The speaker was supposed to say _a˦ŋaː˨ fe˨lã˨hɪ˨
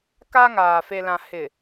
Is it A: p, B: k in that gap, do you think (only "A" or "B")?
B